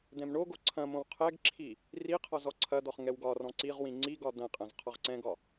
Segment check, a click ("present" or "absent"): present